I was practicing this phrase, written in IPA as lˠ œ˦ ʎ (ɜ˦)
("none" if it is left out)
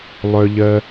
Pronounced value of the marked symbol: ɜ˦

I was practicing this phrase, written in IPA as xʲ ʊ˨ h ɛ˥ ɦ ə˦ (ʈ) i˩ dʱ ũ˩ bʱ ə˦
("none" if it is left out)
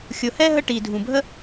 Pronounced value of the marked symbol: ʈ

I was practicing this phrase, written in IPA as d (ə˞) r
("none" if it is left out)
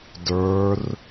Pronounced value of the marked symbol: ə˞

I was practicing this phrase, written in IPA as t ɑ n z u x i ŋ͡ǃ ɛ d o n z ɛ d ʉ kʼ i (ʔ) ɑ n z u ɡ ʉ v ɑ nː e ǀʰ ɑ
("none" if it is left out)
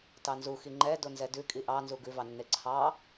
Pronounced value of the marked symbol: ʔ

